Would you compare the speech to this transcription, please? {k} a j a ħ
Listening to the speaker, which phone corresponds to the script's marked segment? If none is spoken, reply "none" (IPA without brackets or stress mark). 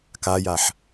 k